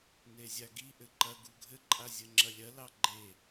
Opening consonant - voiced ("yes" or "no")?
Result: yes